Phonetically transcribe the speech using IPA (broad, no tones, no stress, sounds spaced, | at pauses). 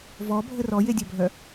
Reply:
v ɔ bʱ ə r ɔ j e dʲ œ bʱ œ